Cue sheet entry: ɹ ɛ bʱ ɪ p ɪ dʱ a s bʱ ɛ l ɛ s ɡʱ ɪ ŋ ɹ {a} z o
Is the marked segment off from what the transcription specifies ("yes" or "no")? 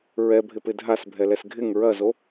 yes